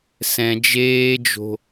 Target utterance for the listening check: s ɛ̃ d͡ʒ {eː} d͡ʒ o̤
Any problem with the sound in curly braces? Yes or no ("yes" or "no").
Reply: no